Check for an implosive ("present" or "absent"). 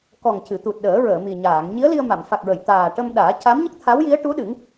present